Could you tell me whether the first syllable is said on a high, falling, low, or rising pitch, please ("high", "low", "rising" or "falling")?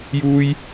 high